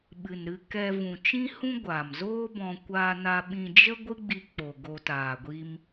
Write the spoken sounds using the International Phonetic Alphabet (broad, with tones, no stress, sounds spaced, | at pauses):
ɓ ɨ˨ n ɾ ɨ˧ k ɛ˧ v ũ˨ t͡ʃ ĩ˦ h ũ˦ ɡʷ a˨ m z oː˦ b ɔ̃˧ kʷ aː˧ n a˧ ɓ ĩ˧ d͡ʒ ə˦ ɡʷ ɨ˦ ɡ͡b i˧ k͡p o˨ ɡ o˧ t aː˨ ɡʷ i˦ m